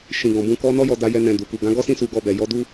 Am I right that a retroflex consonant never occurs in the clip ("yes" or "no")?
yes